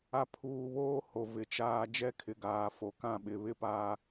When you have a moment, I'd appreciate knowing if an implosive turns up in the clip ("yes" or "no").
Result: yes